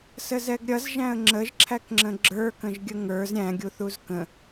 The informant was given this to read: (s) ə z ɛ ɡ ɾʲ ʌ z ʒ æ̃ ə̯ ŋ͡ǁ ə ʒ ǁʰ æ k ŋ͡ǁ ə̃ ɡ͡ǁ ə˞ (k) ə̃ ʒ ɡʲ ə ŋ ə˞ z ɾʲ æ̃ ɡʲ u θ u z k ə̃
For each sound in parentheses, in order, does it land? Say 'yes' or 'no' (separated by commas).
yes, yes